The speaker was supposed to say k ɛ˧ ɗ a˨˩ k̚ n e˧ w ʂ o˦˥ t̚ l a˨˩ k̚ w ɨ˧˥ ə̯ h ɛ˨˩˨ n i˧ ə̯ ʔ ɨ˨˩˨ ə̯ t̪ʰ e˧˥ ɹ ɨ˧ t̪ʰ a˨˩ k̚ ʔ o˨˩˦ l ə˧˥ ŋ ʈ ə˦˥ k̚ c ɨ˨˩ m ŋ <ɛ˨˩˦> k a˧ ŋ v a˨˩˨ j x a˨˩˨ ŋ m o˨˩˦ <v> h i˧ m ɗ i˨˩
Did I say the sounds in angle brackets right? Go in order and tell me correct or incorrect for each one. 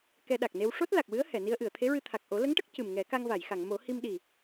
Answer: correct, incorrect: none

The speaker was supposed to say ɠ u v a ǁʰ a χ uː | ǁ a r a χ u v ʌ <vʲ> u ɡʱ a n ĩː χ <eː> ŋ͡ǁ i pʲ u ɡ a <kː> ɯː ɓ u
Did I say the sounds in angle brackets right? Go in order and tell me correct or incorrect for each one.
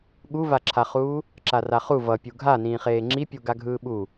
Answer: incorrect: pʲ, correct, incorrect: ɡʱ

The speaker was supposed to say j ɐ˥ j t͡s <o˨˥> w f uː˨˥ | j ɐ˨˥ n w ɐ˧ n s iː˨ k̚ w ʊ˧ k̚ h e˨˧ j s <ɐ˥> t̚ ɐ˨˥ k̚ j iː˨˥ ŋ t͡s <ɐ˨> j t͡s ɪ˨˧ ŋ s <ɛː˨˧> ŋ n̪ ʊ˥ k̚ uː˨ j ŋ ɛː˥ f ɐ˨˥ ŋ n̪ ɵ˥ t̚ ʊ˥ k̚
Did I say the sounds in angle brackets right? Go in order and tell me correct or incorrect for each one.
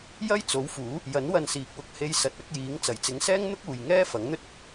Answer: correct, incorrect: ɐ˨, incorrect: ɐ˨˩, incorrect: ɛː˥

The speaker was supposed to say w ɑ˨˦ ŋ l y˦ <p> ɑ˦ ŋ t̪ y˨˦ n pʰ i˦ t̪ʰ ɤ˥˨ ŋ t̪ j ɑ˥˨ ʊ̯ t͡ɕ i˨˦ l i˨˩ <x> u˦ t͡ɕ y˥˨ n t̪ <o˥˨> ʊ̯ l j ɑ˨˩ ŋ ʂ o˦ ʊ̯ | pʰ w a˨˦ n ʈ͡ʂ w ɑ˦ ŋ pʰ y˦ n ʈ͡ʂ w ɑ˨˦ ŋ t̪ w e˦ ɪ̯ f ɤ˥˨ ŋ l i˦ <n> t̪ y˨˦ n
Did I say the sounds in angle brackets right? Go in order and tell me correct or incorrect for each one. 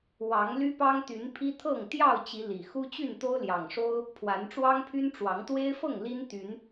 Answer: correct, correct, incorrect: o˦, correct

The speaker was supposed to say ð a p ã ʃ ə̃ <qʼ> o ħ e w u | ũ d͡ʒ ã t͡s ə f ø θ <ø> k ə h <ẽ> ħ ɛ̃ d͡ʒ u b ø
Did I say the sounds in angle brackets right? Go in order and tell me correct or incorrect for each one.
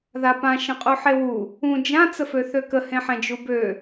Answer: correct, correct, correct

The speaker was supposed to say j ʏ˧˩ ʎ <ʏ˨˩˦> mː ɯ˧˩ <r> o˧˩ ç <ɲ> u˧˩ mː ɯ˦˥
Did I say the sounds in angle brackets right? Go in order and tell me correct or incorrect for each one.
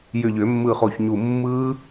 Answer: correct, incorrect: χ, correct

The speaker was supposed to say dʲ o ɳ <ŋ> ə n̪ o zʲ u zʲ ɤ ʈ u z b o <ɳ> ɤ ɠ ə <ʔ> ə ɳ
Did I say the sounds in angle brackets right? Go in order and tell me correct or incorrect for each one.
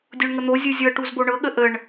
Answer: correct, correct, correct

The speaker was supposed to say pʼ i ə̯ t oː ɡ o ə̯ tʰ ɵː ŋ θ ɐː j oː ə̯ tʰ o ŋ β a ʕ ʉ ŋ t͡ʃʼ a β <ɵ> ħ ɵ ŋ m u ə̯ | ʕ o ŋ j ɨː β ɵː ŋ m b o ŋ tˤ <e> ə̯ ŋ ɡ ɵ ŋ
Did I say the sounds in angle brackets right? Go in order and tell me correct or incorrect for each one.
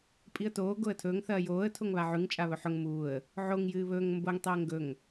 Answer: correct, incorrect: i

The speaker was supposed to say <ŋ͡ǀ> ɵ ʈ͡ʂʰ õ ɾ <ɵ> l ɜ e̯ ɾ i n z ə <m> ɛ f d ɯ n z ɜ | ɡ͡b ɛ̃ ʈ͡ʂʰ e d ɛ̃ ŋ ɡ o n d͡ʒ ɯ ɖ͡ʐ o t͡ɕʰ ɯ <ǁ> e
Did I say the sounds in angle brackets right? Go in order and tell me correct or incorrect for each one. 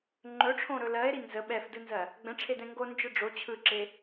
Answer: incorrect: ŋ͡ǃ, correct, incorrect: ɓ, correct

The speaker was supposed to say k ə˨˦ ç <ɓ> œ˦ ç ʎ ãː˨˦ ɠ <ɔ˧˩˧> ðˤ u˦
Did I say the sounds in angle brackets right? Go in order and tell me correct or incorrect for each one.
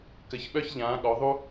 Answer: correct, incorrect: ɔ˨˦

